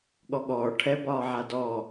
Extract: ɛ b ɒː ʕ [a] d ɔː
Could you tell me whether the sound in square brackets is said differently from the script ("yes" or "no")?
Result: no